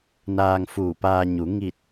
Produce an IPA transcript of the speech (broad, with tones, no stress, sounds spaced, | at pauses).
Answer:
n aː˧ ŋ f uː˧˩ p aː˧ ɲ u˩˧ ŋ i˧˩ t̚